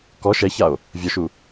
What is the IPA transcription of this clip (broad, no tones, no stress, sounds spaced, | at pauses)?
k ɔ ʃ ɛ ç a o̯ | vʲ ɔ ʃ u